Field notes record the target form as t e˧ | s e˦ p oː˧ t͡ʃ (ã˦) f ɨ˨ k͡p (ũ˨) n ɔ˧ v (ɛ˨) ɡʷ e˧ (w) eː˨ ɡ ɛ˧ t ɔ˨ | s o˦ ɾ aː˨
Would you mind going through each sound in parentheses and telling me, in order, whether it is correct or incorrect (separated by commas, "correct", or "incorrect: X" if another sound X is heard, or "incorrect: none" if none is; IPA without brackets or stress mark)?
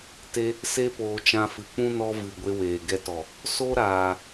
incorrect: ã˧, incorrect: ũ˦, incorrect: ɨ˨, correct